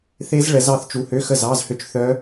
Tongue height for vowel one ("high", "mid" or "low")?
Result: mid